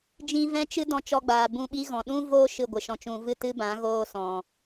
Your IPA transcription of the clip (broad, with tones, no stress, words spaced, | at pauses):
d͡ʒĩ˧vɛ̃˦t͡ʃɨ˦ dɔ̃˧t͡ʃɔ˧ɡ͡baː˨ bũ˧ɓi˦ ɣɔ̃˨ɗũ˦ voː˦ ʃɨ˦˨ɡʷɨ˨ʃɔ̃˧t͡ʃũ˧ vɨ˦˨tɨ˦bã˨˦ ɣoː˧sɔ̃˨